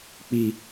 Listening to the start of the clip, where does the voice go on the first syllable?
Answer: low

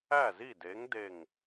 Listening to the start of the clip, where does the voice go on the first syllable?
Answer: falling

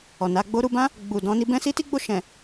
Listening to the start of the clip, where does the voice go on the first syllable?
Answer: low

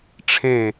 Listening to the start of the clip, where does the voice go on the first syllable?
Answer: falling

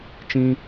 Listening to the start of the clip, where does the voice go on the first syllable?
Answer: high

